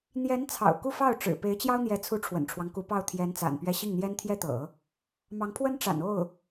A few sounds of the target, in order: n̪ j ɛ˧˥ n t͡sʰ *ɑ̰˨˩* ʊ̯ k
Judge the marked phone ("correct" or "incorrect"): correct